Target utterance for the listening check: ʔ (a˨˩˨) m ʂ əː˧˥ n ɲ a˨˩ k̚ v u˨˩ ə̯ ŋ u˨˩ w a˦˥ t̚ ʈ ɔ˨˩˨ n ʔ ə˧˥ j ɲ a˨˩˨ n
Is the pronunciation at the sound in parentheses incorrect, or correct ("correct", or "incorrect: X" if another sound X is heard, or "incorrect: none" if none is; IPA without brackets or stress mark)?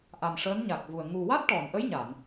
incorrect: a˨˩